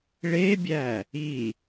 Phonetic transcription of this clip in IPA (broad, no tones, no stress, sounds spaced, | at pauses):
ɭ e bʲ æ | i